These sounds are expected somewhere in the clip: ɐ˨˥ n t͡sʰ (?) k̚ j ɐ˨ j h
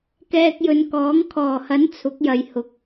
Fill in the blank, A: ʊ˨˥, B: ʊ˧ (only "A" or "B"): A